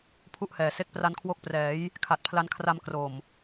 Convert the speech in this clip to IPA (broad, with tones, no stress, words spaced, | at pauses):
pʰu˥˩ʔhɛː˨˩se˥˩k̚ pra˦˥nkʰwo˦˥k̚prɛː˩˦j | kʰa˨˩t̚pʰla˧nkʰra˧m kro˨˩m